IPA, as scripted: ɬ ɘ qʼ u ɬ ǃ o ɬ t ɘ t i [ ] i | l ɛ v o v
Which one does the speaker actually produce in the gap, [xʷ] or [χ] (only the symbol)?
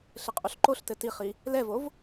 χ